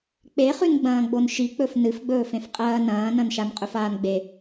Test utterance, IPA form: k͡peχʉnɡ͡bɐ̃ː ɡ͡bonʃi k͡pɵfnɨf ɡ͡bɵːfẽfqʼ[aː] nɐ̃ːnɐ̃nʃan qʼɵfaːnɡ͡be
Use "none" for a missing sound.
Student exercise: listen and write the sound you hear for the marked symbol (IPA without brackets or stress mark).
ɐː